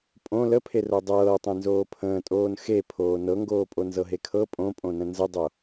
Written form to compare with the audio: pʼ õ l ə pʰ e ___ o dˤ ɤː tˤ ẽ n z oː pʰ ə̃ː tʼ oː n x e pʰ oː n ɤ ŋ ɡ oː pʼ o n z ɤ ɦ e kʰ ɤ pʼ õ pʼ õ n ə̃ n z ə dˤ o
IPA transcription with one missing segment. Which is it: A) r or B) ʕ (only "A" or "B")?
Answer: A